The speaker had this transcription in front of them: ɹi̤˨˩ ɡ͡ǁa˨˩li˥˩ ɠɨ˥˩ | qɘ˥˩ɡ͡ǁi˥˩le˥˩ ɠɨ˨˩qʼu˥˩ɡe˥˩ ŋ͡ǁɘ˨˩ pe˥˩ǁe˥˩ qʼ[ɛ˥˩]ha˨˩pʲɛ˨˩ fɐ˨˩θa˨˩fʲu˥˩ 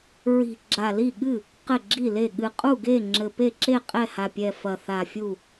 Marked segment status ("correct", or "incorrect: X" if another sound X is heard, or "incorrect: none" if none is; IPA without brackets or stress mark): correct